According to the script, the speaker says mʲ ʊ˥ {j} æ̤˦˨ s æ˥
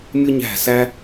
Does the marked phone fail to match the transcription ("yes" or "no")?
yes